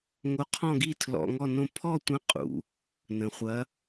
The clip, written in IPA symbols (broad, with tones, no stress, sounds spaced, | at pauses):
ŋ o˧˥ qʰ ɔ̃˥˧ ɡ i˥˧ tʰ l ɔ̰˧˥˧ ŋ ɔ˥˧ n õ˥˧ pʰ ɔ˥˧ tʷ ə̃˧˥ qʼ ṵ˨ | n ə̃˨ χʷ ɐ˧˥